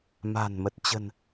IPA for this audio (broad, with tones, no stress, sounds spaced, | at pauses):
m a̤˨˩ n m ə˨˩ t̚ t͡ɕ ə̤˨˩ n